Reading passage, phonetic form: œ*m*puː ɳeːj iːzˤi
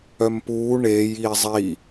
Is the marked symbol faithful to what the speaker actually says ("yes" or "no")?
yes